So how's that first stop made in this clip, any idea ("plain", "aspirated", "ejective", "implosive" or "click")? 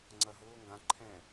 click